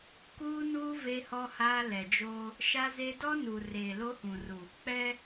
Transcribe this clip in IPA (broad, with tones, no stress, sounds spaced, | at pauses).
k uː˦ n uː˦ v e˦ h ɔ˦ h aː˦ l ɛ˨ d͡ʒ oː˦ | ʃ a˦ z e˦ d ɔ˦ n u˨ r eː˨ l o˦ h ũ˨ r u˨ | k͡p ɛ˦